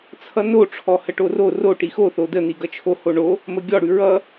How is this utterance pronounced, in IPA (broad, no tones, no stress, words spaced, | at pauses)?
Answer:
t͡sʰʌno ʈ͡ʂʰɔhəʈoro ro ʈixo θodə n̪iɡʌt͡ʃʰo hoɳo | məɡʲɔ ɽʉɹʌ